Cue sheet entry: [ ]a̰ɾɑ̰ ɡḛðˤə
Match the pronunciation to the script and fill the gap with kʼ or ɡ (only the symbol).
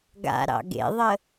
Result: ɡ